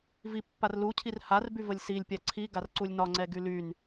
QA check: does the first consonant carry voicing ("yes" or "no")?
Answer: yes